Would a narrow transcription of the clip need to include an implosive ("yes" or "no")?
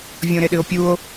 yes